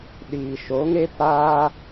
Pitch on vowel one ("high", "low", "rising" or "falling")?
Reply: low